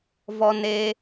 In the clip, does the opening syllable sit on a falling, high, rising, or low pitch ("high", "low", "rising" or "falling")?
high